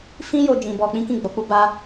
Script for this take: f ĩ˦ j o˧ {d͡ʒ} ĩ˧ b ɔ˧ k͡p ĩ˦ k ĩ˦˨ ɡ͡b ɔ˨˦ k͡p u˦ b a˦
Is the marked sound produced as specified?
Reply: yes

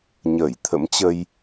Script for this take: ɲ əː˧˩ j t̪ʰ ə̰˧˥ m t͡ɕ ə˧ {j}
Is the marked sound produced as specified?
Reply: yes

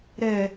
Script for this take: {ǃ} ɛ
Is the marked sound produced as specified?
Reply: no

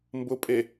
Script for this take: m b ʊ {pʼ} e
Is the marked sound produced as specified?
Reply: yes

